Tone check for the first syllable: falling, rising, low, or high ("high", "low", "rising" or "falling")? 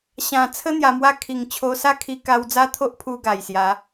low